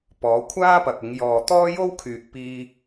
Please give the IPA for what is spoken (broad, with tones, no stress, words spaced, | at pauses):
pɔː˨˧kʷʰaː˥pɐ˨k̚ ɪ˨˧ŋ jɔː˨t̪ɔː˥jo˥wkʰyː˨k̚ piː˥